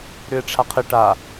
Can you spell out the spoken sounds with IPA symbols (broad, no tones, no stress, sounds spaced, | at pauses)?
ɾ ʏ e̯ ʈ͡ʂʰ a qʰ ɪ ʈ a